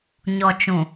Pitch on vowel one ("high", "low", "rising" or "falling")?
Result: low